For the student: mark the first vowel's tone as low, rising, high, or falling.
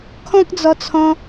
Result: high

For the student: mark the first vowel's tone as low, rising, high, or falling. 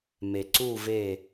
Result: low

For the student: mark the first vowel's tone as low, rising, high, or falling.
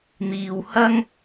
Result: low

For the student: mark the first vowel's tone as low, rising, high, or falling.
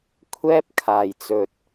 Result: high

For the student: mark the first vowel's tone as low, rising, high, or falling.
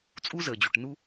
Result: high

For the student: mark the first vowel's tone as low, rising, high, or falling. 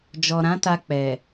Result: low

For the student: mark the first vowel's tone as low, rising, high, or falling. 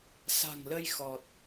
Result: low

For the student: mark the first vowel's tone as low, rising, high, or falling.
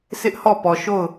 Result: high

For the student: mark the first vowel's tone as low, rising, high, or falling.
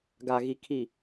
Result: low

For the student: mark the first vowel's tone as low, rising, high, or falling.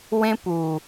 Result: high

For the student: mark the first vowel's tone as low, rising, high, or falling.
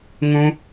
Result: high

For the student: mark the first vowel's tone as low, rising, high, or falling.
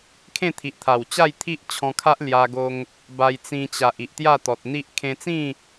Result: falling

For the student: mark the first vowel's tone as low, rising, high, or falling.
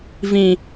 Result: low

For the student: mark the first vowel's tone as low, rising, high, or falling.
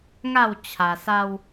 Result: falling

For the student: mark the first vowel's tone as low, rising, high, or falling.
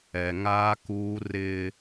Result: low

